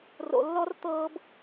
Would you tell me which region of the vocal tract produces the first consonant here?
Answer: tongue tip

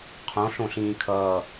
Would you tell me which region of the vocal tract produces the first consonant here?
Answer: uvula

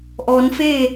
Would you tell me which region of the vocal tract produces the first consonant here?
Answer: throat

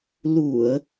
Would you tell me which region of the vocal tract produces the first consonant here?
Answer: tongue tip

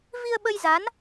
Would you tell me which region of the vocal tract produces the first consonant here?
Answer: lips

